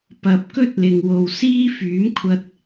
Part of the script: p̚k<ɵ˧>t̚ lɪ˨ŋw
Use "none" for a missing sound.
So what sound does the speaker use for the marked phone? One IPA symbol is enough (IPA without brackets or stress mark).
ɵ˥